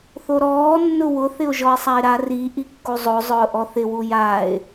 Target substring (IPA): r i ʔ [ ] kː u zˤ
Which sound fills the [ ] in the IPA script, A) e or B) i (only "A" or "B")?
B